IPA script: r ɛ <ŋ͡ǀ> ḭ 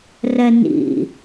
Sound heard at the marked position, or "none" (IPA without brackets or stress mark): n